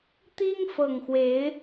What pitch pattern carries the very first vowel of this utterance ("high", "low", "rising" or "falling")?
high